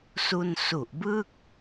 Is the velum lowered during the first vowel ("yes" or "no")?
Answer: no